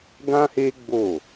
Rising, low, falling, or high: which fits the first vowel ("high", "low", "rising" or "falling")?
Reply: high